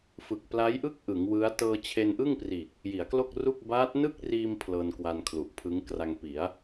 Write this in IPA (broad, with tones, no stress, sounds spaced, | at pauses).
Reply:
f ɯ˨˩ k̚ p l a˦˥ j ʔ ɯ˥˩ k̚ ʔ ɯ˩˦ ŋ w ɯ˦˥ a̯ t ɤː˧ t͡ɕʰ e˧ n ʔ ɯ˥˩ ŋ p r iː˨˩ k̚ | j i˩˦ a̯ k l o˥˩ k̚ r u˥˩ k̚ b aː˦˥ t̚ n ɯ˥˩ k̚ r iː˧ m pʰ l ɤː˧ n k w a˧ n kʰ l u˨˩ ʔ pʰ ɯ˦˥ ŋ k r a˧ ŋ p i˩˦ a̯